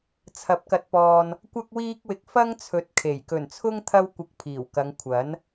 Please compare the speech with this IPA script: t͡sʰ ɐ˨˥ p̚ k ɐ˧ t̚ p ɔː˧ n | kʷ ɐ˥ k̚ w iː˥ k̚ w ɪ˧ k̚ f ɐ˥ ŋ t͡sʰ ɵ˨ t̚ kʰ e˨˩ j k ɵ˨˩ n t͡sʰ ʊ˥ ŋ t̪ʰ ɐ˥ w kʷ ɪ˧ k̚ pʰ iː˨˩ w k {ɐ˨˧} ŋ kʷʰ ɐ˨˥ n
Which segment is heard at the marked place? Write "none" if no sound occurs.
ɐ˨˧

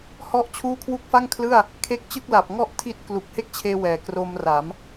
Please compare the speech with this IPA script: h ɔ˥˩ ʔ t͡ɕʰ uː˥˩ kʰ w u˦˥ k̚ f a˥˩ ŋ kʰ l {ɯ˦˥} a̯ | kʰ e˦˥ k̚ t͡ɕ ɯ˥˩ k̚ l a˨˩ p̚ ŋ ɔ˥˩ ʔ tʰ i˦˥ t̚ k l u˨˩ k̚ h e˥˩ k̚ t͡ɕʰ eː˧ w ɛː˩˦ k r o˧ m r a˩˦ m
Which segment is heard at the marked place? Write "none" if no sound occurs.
ɯ˥˩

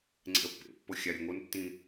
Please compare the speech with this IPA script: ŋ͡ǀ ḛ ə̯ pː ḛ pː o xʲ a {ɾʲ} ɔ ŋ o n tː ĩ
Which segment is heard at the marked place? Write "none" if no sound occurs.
ɾʲ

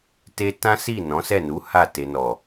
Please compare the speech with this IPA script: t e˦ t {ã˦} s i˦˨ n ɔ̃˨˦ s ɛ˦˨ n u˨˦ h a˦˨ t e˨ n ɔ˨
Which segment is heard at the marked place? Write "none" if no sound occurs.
ã˦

